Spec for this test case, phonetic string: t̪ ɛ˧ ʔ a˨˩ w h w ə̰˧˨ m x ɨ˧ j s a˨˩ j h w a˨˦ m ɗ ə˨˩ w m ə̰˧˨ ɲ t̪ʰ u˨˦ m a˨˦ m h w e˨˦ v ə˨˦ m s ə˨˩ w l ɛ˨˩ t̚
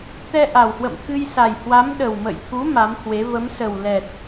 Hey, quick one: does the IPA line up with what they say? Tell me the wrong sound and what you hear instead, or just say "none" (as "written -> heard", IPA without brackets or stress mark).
ɲ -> j